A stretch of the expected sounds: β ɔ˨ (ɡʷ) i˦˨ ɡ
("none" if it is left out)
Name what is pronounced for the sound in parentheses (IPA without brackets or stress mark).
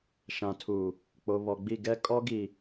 ɡ͡b